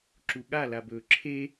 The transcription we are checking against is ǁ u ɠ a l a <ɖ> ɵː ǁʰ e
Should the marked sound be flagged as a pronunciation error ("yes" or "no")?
yes